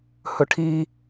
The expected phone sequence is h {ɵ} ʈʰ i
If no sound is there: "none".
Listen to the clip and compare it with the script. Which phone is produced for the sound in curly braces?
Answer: ɵ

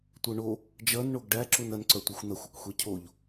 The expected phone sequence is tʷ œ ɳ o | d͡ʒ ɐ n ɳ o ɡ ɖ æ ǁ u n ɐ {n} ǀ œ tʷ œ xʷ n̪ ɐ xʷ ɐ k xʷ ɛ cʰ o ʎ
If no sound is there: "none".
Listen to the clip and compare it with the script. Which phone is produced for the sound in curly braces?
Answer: n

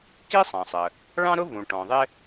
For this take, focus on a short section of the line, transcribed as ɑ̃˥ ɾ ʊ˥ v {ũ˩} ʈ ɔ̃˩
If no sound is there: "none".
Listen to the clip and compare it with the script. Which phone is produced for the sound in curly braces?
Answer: ũ˩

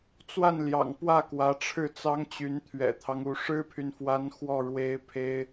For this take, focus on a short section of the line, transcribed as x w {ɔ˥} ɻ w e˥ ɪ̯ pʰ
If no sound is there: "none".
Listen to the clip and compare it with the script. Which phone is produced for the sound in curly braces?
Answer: ɔ˥˩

